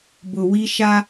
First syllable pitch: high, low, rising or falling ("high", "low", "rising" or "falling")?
low